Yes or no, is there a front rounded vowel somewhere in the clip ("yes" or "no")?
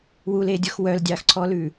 yes